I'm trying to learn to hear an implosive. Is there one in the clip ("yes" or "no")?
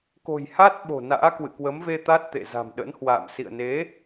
yes